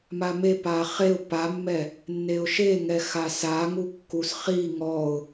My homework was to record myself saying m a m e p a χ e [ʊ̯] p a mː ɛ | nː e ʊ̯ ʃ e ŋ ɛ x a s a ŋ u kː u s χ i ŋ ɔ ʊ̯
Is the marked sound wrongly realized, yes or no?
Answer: no